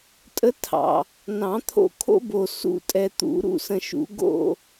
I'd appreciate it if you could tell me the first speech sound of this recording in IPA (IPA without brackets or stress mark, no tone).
tʼ